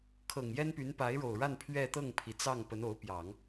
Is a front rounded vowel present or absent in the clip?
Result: present